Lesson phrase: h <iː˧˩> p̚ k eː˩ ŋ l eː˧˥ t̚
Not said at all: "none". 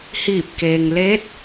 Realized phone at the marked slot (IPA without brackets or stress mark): iː˧˩